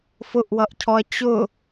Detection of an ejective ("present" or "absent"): absent